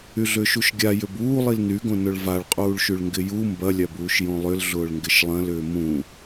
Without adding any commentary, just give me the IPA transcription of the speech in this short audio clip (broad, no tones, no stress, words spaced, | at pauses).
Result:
yɮʏːʃuʃɡʲa jʏbuː lˠilnyɡõ nʊɭvaɭqʼuːɭʃyɭ ŋɡɪju mbɐlʲabuːʃ jõlˠʏl ɮʊːɭŋɡɪʃlˠɐ̃lʏː mũ